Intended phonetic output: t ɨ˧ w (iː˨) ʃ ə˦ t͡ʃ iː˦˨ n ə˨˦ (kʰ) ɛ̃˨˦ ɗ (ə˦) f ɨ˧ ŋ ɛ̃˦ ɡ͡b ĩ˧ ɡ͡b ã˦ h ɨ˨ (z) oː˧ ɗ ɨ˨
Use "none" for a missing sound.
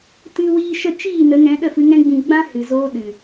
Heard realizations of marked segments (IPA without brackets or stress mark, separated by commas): iː˦, ŋ, ə˦˨, z